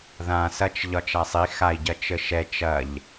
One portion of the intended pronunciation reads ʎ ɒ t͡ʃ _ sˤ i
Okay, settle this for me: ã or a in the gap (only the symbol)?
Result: a